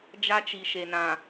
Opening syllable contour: high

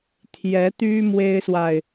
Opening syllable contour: rising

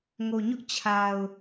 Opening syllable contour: low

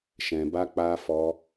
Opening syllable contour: low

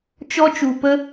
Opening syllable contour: high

